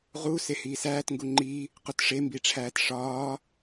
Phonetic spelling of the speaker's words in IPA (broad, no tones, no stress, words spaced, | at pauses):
ʁu sehiːsæːt ŋɡuŋ͡ǃi | qutʂe mbiʈ͡ʂʰæːtʂɒː